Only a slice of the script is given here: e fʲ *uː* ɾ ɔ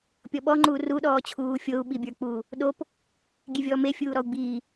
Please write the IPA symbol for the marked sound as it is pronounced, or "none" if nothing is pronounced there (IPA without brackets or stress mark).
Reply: uː